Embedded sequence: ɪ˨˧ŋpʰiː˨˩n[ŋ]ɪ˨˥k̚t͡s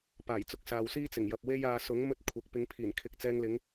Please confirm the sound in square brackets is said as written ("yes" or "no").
no